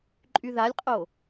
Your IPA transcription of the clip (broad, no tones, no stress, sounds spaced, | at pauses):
ǃʼ y ð a lʲ qʼ o